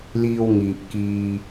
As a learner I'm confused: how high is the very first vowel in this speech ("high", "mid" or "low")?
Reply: high